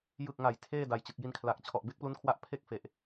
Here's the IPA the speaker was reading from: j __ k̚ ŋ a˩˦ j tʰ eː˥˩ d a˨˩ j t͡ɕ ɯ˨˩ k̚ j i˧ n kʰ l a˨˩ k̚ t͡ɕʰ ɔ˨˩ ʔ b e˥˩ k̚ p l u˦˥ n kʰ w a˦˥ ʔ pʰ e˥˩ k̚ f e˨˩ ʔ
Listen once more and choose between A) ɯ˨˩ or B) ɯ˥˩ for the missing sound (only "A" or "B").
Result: A